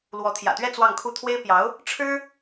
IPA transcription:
l w ɔ˧˥ t̪ʰ j ä̰˨˩ t̪ ɥ ɛ˥˧ t͡s w ɑ˥˧ ŋ kʰ u˥˩ t̪ʰ w e˥ ɪ̯ p j ɑ˧˥ ʊ̯ | ʈ͡ʂʰ ɻ̩˥

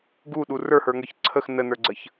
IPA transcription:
ɡ u ɗ u r ə˞ h ə˞ ŋ ə˞ ç ǀʰ ə x n ə n ə˞ ɡ͡ǀ ə ç

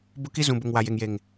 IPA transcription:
b ʊ˦ k i˦ z ũ˨ b ʊ˨ ŋ w a˨ j e˨ ŋ j e˨ ŋ

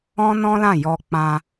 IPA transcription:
ɔ̃˦ n ɔ̃˦ l ã˦˨ j ɔ˧ k͡p ã˧

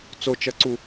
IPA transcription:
t͡s o t͡ʃ ʌ ǀ u

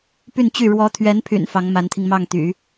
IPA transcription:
p y˥˧ n t͡ɕ y˥˩ ɻ w ɔ˧˥ t̪ʰ ɥ ɛ˧˥ n pʰ y̰˨˩ n f ɑ˧˥ ŋ m a˧˥ n t̪ʰ i˧ ŋ m ɑ˥˩ ŋ t̪ y̰˨˩˦

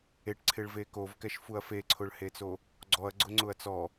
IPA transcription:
e ʈ ǀʰ ɪ ɭ v e k o v k ɛ ʃ f u ɐ̯ f e ǀʰ ʊ ɭ h e t͡s o | ɡ͡ǀ ɔ ɐ̯ ɡ͡ǀ ʊ ŋ͡ǀ ʊ ɐ̯ t͡s ɔ

